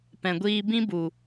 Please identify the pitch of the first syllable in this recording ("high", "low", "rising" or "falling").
low